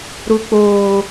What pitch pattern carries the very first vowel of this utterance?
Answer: high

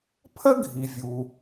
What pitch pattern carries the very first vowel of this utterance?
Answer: high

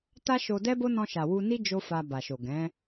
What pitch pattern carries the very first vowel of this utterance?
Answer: high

